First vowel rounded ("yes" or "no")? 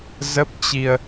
no